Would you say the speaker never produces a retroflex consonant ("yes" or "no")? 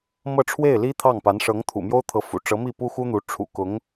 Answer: no